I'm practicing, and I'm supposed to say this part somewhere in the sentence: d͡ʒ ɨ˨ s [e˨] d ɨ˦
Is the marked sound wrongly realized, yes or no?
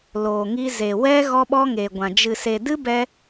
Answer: no